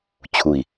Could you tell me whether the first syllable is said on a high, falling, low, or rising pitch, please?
low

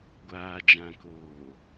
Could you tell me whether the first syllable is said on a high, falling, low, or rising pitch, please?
low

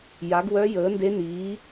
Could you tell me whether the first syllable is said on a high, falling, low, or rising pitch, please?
rising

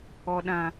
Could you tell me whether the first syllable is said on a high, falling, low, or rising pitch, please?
low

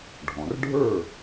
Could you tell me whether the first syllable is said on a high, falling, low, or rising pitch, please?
low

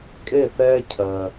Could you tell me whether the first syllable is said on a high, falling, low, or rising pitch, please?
falling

